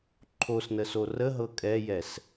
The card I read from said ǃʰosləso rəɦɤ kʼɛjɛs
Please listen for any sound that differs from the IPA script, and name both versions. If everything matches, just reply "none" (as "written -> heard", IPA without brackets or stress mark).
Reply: l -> n